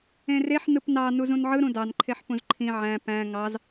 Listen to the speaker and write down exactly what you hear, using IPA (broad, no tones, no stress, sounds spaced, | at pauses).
ẽ r e ħ n ɯ p n ɑ n u z ũ n ʕ ɯ ɾ ũ d ɑ n ǃʰ e ħ p ũ z ǃʰ ĩ ʕ æ̃ p æ̃ ŋ ɑ z